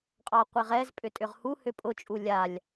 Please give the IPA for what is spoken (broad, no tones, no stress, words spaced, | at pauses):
qʼɑqʷeʁɛz pʼʏtʼʏʁhu hʏpʼʊ t͡ʃʼulʲalʲ